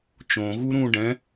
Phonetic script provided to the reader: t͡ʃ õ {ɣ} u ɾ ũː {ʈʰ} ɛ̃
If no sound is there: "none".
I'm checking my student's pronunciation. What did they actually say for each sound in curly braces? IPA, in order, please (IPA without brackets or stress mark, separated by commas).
ɣ, ɖ